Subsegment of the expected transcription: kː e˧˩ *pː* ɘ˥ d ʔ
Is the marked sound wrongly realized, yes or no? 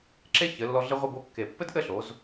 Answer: no